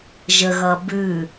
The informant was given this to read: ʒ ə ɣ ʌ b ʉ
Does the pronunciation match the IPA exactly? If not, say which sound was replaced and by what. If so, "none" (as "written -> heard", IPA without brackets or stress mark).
none